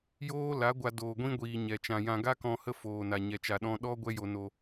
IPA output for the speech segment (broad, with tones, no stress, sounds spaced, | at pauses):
j oː˦ l a˨˦ ɡʷ a˧ d oː˨ ɡʷ ĩ˦ ɡʷ iː˨ ɲ ɛ˨ t͡ʃ ã˨ j ã˧ ɡ a˦ k ɔ̃˧ h ə˦ f oː˨ n a˨ ɲ ɛ˧ t͡ʃ a˧ ɗ ɔ̃˦ ɗ ɔ˦ ɡʷ ɛ˦ j o˧ n o˧